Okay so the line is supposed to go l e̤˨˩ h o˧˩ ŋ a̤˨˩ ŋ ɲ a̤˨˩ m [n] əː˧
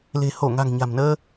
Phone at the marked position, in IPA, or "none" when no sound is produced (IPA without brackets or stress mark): n